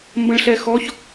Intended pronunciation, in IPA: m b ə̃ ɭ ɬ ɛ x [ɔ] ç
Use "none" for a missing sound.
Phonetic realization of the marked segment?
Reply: ɔ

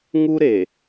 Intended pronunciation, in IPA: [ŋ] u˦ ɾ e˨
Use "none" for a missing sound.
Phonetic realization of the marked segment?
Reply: ŋ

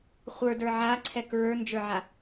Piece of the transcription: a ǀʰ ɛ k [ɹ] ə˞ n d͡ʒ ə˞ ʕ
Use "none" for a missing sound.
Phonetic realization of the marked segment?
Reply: ɹ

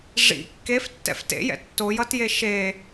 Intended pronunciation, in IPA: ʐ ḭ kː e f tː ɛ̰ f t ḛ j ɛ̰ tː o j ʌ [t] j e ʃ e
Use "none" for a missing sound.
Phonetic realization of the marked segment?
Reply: t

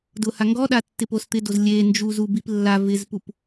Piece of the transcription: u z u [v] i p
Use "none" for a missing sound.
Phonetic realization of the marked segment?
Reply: b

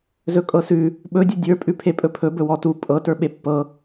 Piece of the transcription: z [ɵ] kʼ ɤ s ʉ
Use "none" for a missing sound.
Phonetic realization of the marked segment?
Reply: ɵ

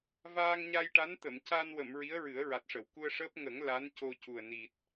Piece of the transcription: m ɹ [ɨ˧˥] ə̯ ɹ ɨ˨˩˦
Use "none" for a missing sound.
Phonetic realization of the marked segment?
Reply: i˧˥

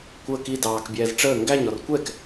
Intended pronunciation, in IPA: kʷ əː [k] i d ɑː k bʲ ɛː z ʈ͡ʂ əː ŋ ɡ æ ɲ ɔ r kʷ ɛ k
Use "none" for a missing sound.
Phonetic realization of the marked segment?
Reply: k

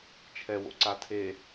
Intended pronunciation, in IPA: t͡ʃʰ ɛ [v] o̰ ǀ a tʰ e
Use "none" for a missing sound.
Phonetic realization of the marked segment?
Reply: w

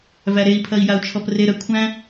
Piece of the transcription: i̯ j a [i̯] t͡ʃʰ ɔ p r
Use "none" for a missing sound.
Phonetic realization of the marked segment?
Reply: u̯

